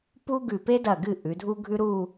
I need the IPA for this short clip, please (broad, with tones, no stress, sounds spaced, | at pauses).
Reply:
p u˥ ɡ ʉ˧˩ p e˥ d ɐ˧˩ ɡ ɨ˧˩ ʔ ʉ˩˧ dʱ u˥ ɡʱ ʉ˥ ɾ u˥˧